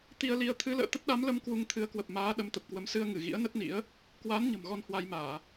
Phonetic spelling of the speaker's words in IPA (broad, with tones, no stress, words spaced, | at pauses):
t̪i˧ə̯li˧ə̯ t̪ʰɨ˨˦lə̰ː˧˨ t̪ə˦˥t̚ɗa˨˦mlə˧m kwu˧ŋt̪ʰɨ˨˦ə̯kwə˨˩p̚maː˨˦ ɗə˨˦mt̪ə˨˩p̚kwə˨˦m sɨ˧ə̯ŋɨ˧˩ ɣḭ˧˥ə̯nə˦˥t̚nḭ˧˥ə̯ | kwa˨˦n ɲə̤˨˩mɣɔ˧nhwa˧jmaː˧˩˨